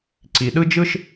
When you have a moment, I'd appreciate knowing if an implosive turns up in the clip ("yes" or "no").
yes